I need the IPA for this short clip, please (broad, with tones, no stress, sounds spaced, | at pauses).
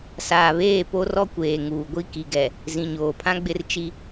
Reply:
s aː˨ β eː˦˨ p o˦ r ɔ˦ kʷ eː˨ ŋ uː˨ ɡʷ i˦ k i˨ ɡ ɛ˨ | z ĩ˨ ɲ oː˨ pʰ ã˦ ɡ͡b ɪ˦ r t͡ʃ i˦